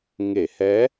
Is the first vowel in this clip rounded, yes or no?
no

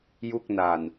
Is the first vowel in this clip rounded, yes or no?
yes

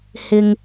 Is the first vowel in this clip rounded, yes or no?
no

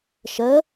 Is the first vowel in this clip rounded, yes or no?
no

